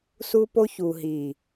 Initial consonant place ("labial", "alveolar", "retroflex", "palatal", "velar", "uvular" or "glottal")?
alveolar